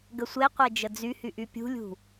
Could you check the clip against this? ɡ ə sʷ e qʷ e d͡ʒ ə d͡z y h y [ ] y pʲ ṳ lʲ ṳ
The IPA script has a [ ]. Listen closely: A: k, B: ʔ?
B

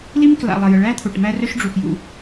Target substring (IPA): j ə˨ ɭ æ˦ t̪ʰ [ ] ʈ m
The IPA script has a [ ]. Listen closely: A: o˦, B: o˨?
B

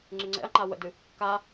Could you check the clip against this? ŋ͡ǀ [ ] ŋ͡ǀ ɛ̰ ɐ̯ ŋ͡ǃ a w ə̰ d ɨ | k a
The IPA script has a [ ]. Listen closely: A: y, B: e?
A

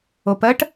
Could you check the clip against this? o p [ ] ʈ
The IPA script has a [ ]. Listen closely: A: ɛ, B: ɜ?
B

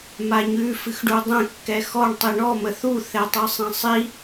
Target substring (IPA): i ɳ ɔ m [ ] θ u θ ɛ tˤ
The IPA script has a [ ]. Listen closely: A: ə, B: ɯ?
A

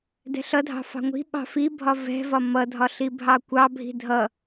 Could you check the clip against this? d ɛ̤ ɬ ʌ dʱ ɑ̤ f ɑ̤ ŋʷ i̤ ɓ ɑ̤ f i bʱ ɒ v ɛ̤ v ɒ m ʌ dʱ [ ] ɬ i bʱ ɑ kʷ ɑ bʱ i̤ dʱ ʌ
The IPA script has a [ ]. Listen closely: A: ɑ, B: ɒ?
B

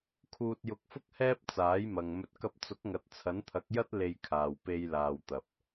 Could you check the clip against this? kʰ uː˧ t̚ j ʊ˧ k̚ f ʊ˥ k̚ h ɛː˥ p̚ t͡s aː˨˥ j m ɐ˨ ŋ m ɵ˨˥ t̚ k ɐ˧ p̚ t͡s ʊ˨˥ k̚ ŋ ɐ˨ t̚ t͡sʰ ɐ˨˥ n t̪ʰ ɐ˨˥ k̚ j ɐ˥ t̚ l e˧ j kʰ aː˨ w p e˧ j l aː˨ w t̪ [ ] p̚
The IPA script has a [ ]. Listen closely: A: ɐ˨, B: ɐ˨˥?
A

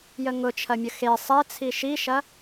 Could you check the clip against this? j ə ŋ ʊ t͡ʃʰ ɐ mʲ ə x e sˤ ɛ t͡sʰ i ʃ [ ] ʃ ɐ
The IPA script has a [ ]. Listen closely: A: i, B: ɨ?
A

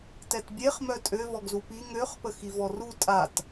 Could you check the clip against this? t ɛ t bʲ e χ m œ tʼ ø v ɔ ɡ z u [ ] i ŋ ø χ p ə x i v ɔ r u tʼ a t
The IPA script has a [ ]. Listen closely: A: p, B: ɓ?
A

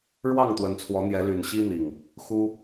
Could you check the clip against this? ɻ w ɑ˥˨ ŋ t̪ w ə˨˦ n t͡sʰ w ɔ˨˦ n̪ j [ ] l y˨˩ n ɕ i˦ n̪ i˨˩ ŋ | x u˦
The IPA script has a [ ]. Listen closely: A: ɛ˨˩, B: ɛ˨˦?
B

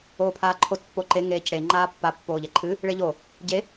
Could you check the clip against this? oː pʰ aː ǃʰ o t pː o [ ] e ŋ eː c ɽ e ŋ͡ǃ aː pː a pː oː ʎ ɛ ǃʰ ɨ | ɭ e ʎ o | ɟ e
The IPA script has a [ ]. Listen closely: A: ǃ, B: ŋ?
A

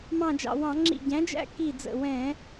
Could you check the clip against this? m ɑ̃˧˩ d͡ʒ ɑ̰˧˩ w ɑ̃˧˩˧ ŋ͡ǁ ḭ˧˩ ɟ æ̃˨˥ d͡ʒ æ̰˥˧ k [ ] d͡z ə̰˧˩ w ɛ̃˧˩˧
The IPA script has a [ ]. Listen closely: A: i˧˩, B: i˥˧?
A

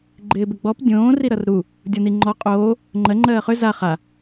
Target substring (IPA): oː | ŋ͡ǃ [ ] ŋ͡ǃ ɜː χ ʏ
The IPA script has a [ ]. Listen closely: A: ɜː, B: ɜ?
B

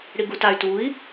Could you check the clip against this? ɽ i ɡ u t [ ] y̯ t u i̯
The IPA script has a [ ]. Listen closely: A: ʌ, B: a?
B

